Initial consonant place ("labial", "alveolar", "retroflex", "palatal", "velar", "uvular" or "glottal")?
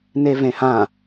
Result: alveolar